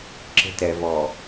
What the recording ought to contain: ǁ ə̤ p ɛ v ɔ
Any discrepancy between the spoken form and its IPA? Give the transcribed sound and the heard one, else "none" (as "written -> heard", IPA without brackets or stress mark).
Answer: p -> t